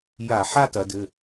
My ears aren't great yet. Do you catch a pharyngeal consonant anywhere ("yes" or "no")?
yes